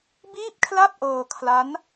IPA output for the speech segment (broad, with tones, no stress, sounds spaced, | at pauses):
b iː˥˩ p̚ kʰ l a˥˩ p̚ ʔ ɤː˧ kʰ l a˦˥ n